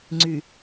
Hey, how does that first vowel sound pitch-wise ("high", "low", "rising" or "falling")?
low